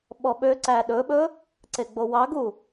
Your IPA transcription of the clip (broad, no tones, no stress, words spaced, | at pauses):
ɓɔɓøǀæ ɗɵɓɵ | ǀeɡ͡bowɑɡu